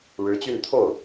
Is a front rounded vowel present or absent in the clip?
present